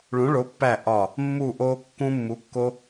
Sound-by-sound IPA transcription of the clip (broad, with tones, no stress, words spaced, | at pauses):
ɭũ˨˥ɭo˨˥pːæ˦˨ ʔɒ˦˨ | mːu˦˨ʔoː˦ kːũ˦mːu˨˥kːo˦